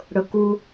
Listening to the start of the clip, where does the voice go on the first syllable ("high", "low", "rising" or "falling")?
low